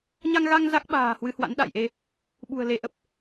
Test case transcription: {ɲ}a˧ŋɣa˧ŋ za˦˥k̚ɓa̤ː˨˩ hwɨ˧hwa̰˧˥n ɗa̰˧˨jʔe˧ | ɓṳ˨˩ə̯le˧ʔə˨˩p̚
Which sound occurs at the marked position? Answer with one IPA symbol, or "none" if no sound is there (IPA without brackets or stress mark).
ɲ